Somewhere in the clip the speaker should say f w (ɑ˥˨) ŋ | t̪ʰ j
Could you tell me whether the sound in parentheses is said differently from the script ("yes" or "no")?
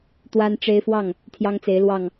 no